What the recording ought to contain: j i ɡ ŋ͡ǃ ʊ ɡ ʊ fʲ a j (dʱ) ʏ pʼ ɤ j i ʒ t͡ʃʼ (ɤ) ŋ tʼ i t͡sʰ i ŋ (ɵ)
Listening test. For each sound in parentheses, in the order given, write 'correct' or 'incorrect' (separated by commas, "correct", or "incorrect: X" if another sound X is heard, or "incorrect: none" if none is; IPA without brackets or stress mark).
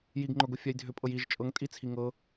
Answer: correct, correct, incorrect: ɤ